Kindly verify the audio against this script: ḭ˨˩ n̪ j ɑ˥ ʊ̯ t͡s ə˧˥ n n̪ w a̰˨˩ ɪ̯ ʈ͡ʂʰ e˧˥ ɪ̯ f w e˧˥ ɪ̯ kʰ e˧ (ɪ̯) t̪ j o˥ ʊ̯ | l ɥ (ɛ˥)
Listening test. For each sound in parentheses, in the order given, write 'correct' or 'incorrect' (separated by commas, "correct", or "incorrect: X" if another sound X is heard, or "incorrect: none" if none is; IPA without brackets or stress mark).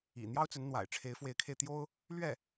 correct, incorrect: ɛ˥˩